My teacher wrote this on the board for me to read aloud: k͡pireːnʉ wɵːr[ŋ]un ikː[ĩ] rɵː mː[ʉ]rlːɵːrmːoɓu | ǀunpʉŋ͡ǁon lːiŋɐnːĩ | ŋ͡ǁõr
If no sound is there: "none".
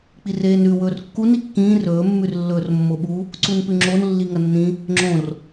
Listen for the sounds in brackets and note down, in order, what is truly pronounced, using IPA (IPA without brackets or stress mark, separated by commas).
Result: kː, ĩː, ʉ